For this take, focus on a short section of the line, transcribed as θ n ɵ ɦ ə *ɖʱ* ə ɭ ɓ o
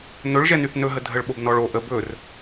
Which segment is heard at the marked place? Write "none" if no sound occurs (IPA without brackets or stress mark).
dʱ